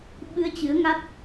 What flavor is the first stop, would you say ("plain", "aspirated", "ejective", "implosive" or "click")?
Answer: implosive